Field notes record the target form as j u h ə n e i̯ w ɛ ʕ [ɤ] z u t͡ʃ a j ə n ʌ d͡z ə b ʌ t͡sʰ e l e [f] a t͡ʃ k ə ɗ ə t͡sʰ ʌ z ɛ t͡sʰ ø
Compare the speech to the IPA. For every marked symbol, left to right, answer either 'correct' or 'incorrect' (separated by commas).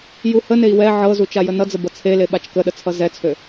correct, incorrect